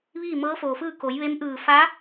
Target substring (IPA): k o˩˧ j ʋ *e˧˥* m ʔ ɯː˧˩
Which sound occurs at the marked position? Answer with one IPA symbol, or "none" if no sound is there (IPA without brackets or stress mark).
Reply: e˧˥